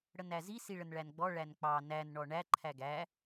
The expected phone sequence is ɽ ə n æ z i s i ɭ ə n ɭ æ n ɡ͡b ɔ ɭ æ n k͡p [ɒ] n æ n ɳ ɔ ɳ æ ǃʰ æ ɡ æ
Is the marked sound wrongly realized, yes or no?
yes